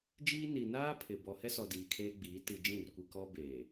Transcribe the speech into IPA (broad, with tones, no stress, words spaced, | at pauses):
d͡ʒiː˦ni˨ naː˦ pʰɪ˨ bɔ˨hɛ˦sɔ˨ diː˨kʰeː˦ɡ͡biː˨˦ ti˨d͡ʒĩ˦˨rkʷi˨ kɔ˦ be˨